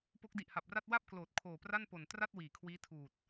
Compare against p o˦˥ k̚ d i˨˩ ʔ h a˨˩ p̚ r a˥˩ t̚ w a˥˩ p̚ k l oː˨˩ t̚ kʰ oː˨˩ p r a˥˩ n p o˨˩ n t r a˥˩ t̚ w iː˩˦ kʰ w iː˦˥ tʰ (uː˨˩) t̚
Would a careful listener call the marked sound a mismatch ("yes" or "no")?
no